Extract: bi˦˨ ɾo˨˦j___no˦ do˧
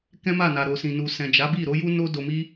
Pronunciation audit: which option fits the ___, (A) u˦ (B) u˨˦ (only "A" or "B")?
A